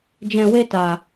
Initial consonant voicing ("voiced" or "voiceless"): voiced